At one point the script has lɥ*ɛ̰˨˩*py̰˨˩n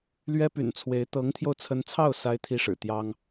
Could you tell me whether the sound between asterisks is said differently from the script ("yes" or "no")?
yes